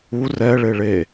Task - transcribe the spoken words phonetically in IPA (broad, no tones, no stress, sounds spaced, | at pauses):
u r ɛ ɭ e ɭ e